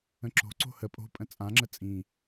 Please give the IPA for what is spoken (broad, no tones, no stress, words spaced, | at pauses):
ə̃ǁo̤ǀo̤ hə pʼo̤pʼə̃ t͡sʼãŋ͡ǁə t͡sʼĩ